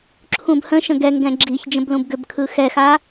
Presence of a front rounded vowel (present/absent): present